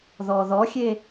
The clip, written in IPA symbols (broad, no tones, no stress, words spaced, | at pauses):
ðɔðɔxʲe